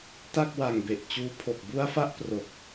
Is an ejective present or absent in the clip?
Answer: absent